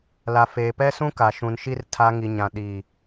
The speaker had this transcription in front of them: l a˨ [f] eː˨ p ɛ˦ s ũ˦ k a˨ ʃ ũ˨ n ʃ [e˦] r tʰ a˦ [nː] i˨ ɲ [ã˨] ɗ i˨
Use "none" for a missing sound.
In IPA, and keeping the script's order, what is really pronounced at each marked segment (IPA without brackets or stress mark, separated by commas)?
f, i˦, ŋ, ã˨